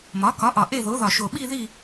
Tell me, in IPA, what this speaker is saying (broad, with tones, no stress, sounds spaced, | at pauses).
m ɒ˩˥ k ɒ˩˥ ʔ ɒ˨˩ ʔ e˦˨ ð o˩˥ ð ɒ˨˩ ʃ o˨˩ ɓ i˦˨ ð i˦˨